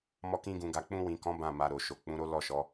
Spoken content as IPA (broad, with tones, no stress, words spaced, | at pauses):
mɔ˦kĩ˦ɡũ˧ɡa˧ k͡pũ˧wĩ˨kɔ̃˨˦ bã˦˨ma˧ɾo˨ʃo˨ k͡pũ˨˦ɾo˦lɔ˦˨ʃɔ˨˦